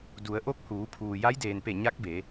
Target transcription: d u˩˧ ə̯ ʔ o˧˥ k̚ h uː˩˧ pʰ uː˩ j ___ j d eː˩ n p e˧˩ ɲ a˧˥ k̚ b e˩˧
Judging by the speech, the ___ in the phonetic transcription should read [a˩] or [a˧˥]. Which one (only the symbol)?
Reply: a˧˥